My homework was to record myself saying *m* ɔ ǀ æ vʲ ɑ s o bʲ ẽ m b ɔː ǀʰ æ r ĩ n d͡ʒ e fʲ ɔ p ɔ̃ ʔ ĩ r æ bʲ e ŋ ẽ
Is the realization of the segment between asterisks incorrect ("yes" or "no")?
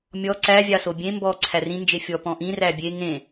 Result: yes